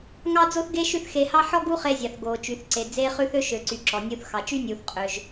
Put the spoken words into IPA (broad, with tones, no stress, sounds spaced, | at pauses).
ŋ ɑ˥ d͡z o˥ θ ɡ e˥ ʃ ʉ˥ θ x e˧ h ɑ˥ ħ ɔ˥ ɡ u˥ χ e˧ zʲ ɑ˩ θ ɡ oː˩ t͡ʃ y˩ θ ǀ e˩ d͡z eː˥ χ ʉ˥ θ ø˥ ʃ ø˩ ǀ y˩ ǁ ɔ˩ nʲ uː˧ θ x ɑ˩ t͡ʃ y˥ nʲ uː˩ θ qʼ ø˩ ʒ